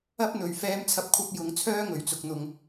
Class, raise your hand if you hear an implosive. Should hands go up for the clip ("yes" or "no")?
no